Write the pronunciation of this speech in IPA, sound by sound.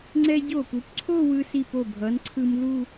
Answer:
ŋ͡ǀɛ˧ɟo˧˩pu˩˧pǀʰo˥˧ wɯ˧si˧˩po˧˩bʱʌ˩˧n ǀʰɯ˧mlu˥˧

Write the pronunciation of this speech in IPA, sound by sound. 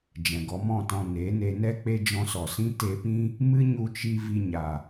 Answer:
d͡ʒɛ̃˨ɡɔ˨˦mɔ̃˦˨tɔ̃˧ ne˨˦ ne˧nɛ˦k͡pe˦ d͡ʒɔ̃˧sɔ˨sĩ˦ te˧pĩ˦ | mɨ˦ɲu˧t͡ʃi˧ vi˧ɲa˨

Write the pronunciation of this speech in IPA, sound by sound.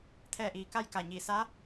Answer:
t̪ʰɛː˧˩ʔiː˩˧ ka˥˨jka˧˩ɲiː˧˩ sa˧˥

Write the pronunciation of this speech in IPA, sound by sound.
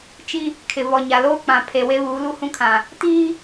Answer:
t͡ʃi˦ | kʰɪ˨vɔ˨ɲa˨ loː˦k͡pã˨ pʰe˨we˦βuː˨˦ lu˦hũ˦kʰã˨ | tiː˦

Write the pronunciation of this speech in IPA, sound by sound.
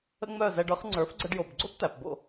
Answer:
ə̰˥ŋ͡mœ˥˩zɛ˧ɖə˞˥χ ŋ͡ǀə˞˩˥fɡ͡ǀə˧ɖjo˩bɡ͡ǀo˥p t̪æ˩pbo̰˥˩

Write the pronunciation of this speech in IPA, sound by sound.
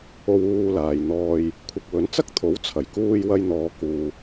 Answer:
o˧wuː˧laː˨j n̪ɔː˨j | kʷʰɐ˨k̚ wɵ˨˥n t͡sɐ˥k̚t̪ʰo˨˥w t͡sʰɐ˨˩jkuː˧j wɐ˧jn̪ɔː˨˧ kuː˨

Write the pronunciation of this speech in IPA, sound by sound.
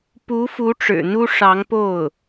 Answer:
pu˧˥fu˧˥ ʈ͡ʂɻ̩˨˩n̪u˥ ʂɑ˧˥ŋpo˥˩ʊ̯

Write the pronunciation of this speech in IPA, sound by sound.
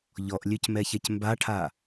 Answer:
ʎɔʔlʲøc mɛçɛcmbaʈʰa

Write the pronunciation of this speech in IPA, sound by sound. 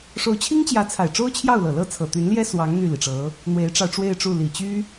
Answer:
ʂo˧˥ʊ̯t͡ɕʰi˥ŋt͡ɕjä˧˥t͡sʰa˨˩ɪ̯ ʈ͡ʂo˥ʊ̯t͡ɕʰjɑ˥˩ʊ̯lɤ˨˩ lɤ˧˥ t͡sʰɤ˨˩t̪y˧˥nljɛ˥ swɑ˧˥ŋ n̪y˥˩li˩ʈ͡ʂɤ˧˥ | n̪we˧˥ɪ̯ʈ͡ʂɑ˧ʊ̯ʈ͡ʂwe˥˧ɪ̯ʈ͡ʂu˥˩ li˨˩t͡ɕy˥

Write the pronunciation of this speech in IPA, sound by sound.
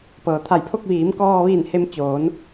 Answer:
pɤː˩t̪ʰa˧˩jpʰo˥˨k̚ ʋiː˩˧m kɔː˧ʋiː˧˩nhe˧m t͡ɕoː˩˧n

